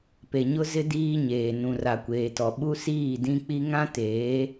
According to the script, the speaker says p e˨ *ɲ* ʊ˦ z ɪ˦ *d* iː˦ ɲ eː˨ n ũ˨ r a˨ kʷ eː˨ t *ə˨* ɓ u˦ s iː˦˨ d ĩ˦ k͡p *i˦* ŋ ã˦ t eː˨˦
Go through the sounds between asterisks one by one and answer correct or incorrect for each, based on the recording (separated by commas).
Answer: correct, correct, incorrect, correct